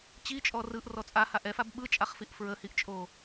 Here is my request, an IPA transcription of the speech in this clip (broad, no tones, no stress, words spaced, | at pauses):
t͡ɕit͡ʃʼɔ rɯʔrɔ t͡sʼaha ʔɛfab ɓɯt͡ʃʼaχfiʔ fɹəhiʔt͡ʃʼo